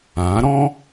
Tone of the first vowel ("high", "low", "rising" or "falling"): rising